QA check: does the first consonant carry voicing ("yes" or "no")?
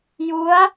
yes